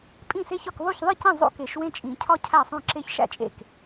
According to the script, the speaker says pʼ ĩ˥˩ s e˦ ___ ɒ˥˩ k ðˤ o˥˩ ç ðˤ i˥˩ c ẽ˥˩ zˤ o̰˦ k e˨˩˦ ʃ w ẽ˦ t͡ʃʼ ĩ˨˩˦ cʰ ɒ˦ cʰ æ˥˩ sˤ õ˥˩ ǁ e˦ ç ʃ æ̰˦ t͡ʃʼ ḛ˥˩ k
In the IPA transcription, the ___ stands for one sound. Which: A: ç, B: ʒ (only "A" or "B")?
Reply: A